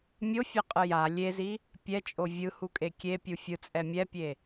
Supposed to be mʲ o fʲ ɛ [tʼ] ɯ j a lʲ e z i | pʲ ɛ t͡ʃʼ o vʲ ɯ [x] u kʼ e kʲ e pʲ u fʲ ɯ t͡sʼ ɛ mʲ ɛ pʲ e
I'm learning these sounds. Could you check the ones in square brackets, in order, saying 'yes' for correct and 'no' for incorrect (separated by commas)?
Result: no, no